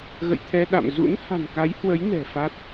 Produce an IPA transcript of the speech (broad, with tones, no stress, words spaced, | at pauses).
ɣə̰˧˨jt̪ʰɛ˧ɗa̰˧˨m zṵ˧˥nha̤˨˩nka˨˦jhwə˨˦j nɛ̤˨˩fa˦˥t̚